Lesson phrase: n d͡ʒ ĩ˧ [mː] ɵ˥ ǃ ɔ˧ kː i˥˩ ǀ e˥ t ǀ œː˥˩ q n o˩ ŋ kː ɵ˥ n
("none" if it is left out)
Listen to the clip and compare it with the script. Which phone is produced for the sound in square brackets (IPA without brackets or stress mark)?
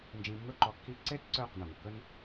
mː